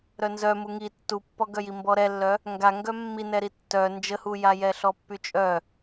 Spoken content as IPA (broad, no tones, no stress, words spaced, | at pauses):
ɾœnzœ muŋi tːupːɔɡœji mbɔɾɛlːœ | ŋɡaŋɡœ mːinɛɾi tːœ nd͡ʒəhujajɛ ɬɔpːyt͡ʃʼœ